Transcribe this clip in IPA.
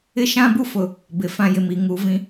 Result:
ɪ˦ ʃ ã˦ b u˦ f ʊ˨ | b ɪ˨ f ã˦ j ɪ˨ m i˨ ŋ uː˨ v ĩ˨

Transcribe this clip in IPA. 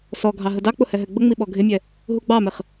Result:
s ɔ ɡʱ ɑ ɦ ə d ɑ k͡p ʊ h ɛ ɦ ɛ ɡ͡b ə ŋ͡m i ɓ ɔ ɡʱ ɪ mʲ ɛ | ɦ u ɡ͡b ɑ m ɪ χ

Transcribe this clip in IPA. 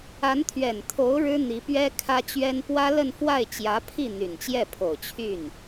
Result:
a˧˥ n t̪ʰ ɥ ɛ˨˩ n t̪ʰ o˧˥ ʊ̯ ɻ ɻ̩˥ n̪ i˧˥ p ɥ ɛ˥ kʰ ä˥ t͡ɕ ɥ ɛ˥ n p w ä˥ l ə˥˧ n f w a˥˩ ɪ̯ t͡ɕ j ä˧˥ pʰ i˥˩ n̪ y˨˩ n t͡ɕ j ɛ˥˩ pʰ o˨˩ ʊ̯ t͡ɕʰ y˥˩ n

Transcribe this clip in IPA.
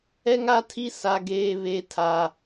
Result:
ɛ˦ ŋ a˦ tʰ i˦ s a˦ ɡ eː˦ β e˦ tʰ a˦

